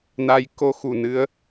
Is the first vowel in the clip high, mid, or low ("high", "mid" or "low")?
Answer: low